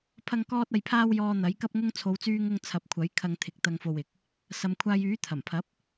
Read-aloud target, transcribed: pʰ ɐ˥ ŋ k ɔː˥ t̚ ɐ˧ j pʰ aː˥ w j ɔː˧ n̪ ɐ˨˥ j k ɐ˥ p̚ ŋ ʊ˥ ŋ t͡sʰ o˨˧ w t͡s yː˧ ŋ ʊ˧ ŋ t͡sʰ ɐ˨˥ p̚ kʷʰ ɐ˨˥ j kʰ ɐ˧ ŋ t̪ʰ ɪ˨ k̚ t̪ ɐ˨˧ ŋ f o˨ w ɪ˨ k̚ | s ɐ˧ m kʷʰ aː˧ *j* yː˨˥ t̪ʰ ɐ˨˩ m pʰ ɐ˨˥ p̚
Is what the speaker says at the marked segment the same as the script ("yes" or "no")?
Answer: yes